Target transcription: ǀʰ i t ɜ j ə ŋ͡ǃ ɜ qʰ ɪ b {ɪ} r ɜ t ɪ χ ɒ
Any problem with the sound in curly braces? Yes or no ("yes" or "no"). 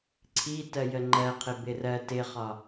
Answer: no